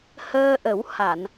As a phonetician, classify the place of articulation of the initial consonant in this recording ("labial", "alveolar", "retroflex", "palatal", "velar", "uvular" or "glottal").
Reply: glottal